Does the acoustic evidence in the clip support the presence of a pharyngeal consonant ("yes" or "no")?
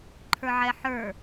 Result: yes